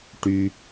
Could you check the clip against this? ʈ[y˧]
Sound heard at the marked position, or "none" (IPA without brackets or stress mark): y˧